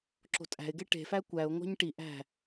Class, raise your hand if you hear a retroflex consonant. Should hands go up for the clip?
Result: yes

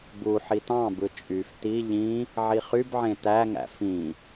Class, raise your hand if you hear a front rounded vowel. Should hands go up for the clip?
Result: yes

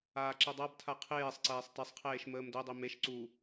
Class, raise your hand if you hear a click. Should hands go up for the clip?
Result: yes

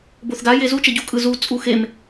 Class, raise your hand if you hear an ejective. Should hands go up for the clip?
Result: yes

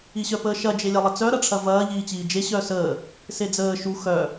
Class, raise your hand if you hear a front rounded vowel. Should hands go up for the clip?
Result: yes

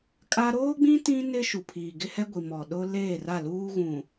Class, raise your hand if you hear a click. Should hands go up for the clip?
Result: no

